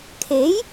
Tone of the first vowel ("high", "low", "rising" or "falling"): rising